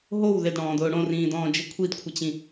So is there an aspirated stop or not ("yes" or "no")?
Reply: yes